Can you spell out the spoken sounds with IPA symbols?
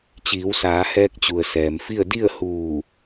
t͡ɕ iː˩˧ w s aː˩˧ h ɛː˧ k̚ t͡ɕ u˩ ə̯ s ɛː˩ m f i˥˨ ə̯ d i˥˨ ə̯ h uː˧˩

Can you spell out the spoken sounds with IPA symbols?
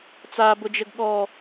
t͡s a b ʊ d͡ʒ ə ɡ ɠ ɔ

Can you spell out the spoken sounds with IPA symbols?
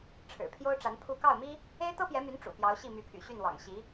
ʈ͡ʂʰ ɻ̩˨˩ pʰ j o˥ ʊ̯ ʈ͡ʂ a˧˥ n pʰ u˥˧ k ɑ˥˩ ʊ̯ m i˥ | e˥ ɪ̯ t̪ ɤ˥ p j ɛ˧˥ m y˧˥ n ʈ͡ʂ ṵ˨˩ p j ɑ˧˥ ʊ̯ ɕ i˥˩ m y˧˥ pʰ y̰˨˩ ɕ y˥˩ n w ɑ̰˨˩ ŋ ɕ i˧˥

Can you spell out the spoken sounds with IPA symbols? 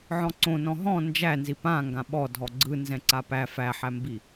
ʕ ɔ̃ ǀ õ n ɔ̃ ɦ ɔ̃ n d͡ʒ æ n z i p ã ŋ ɡ ã ɓ ɔ dʱ ɔ ɡ͡ǀ ɯ n z ɛ̃ ǀ a p æ f æ ħ æ m b i

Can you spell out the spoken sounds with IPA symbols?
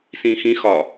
s ĩː x ĩ x ɒ

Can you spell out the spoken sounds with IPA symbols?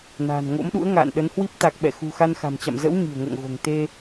n a̤ː˨˩ n ŋ o̰˧˥ m ɗ ṵ˧˥ ə̯ ŋ a̰ː˧˨ n ɗ ə˨˦ n h w i˦˥ p̚ t̪ a˨˩ k̚ ɓ ɛ̰˧˨ x ṳ˨˩ x a˧ n x a̤˨˩ m t͡ɕ a̰˧˨ m z ə̰˧˥ w ɲ i̤˨˩ ə̯ ŋ o̰˧˨ ŋ ɣ o̤˨˩ ŋ t̪ e˧

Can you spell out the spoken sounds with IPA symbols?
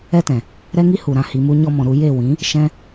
ɛ˦ t ɛ̃˨ | ɾ ɛ˦ ŋ i˦ h u˨ ɾ ã˧ h i˨ m u˧ ɲ ɔ˧ m ɔ̃˨ ɾ u˧ j e˦˨ w ĩ˨˦ | ʃ ɛ̃˦

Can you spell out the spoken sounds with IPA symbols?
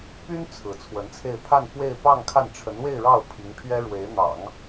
p y˥ n t͡sʰ ɹ̩˧˥ t͡sʰ w ə˧˥ n t͡sʰ e˥˧ ɪ̯ pʰ a˥˧ n f w e˥˧ ɪ̯ p ɑ˥˧ ŋ kʰ a˥˩ n ʈ͡ʂʰ ə˧˥ n w e˥˧ ɪ̯ ɻ ɑ˥˩ ʊ̯ pʰ i˧˥ ŋ pʰ ɥ ɛ˥ ɻ w e˧˥ ɪ̯ n̪ ɑ̰˨˩˦ ŋ

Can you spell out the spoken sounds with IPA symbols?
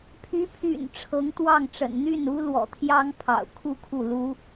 pʰ y˧˥ pʰ y̰˨˩ n ʈ͡ʂʰ ɤ˧˥ ŋ t̪ w ɑ˥˩ ŋ ʈ͡ʂ ə̰˨˩ n n̪ y˥˩ n u˥ l w ɔ̰˨˩ t̪ʰ j ɑ˥ ŋ pʰ ɑ̰˨˩ ʊ̯ kʰ u˥˧ kʰ u˥˩ l u˥

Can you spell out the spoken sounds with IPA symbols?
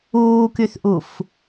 uː k y θ ʔ u f

